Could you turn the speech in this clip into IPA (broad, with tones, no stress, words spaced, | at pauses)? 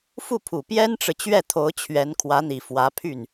fu˥˩pʰu˨˩ pjɛ˥nʈ͡ʂɻ̩˨ t͡ɕɥɛ˥˩t̪ʰo˧˥ʊ̯ t͡ɕʰɥɛ˧˥nkʰwä˧˥n̪i˨˩ fwä˧˥pʰy˥˩n